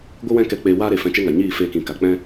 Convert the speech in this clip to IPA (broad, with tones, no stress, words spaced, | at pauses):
ɡʷɨ˦wɛ̃˦kɛ˧ k͡peː˧waː˦ɾe˨ fɛ̃˧t͡ʃe˦ŋa˨ ɲiː˦˨feː˧kĩ˨ ka˨k͡pɛ̃˦